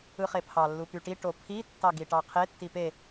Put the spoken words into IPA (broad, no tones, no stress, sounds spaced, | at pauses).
ɯ χ e pʰ ɑ lː u p y ʈ i ʈ o pʰ i tː ɑ ɡ i ʈ ɑ qʰ e tː i p e